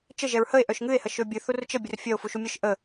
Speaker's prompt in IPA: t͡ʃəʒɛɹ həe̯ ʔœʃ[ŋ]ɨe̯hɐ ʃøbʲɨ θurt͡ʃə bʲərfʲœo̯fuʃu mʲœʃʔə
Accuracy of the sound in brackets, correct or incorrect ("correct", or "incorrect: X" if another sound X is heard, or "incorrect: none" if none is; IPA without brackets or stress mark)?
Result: correct